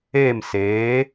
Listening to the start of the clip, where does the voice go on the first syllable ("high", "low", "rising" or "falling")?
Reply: falling